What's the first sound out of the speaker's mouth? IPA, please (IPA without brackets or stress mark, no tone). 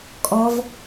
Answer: kʼ